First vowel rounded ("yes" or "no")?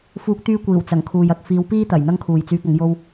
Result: yes